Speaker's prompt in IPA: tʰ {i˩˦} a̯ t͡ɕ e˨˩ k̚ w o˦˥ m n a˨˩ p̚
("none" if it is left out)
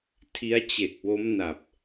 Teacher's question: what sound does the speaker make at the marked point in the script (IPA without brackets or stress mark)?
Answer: i˦˥